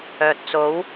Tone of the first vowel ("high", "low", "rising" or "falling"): low